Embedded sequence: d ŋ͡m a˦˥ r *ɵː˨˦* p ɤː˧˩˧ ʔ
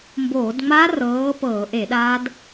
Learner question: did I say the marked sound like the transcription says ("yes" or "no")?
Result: no